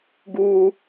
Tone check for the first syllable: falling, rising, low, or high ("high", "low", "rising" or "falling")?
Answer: high